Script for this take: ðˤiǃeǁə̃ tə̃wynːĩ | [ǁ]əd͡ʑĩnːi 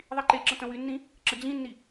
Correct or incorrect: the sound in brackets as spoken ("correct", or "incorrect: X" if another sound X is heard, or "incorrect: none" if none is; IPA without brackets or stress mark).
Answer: correct